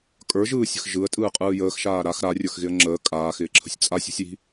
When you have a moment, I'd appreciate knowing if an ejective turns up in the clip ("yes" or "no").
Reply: yes